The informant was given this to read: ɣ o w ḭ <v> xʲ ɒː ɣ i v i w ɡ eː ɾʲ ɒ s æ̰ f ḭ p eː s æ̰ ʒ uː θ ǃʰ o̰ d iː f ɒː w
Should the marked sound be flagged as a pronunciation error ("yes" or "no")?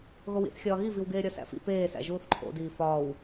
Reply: yes